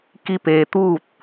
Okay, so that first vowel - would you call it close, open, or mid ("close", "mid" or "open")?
close